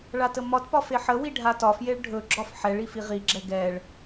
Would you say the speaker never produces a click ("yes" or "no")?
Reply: no